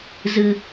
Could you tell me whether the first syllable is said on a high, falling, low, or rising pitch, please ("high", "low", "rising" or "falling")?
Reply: low